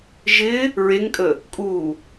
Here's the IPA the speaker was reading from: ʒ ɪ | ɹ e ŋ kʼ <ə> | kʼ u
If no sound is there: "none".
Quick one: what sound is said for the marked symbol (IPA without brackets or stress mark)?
ə